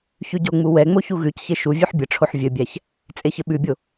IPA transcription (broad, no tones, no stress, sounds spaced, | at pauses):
ç ʉ ɟ o ŋ͡m u w ɛ ŋ͡m o ç u ɣ ʉ c ç e ʃ u vʲ ʉ ħ bʲ ə ʈ͡ʂʰ o ħ vʲ ɘ bʲ æ ç | t͡sʼ e ç ɘ ɓ ʉ bʲ o